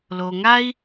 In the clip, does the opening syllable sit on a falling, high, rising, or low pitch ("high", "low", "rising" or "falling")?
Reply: low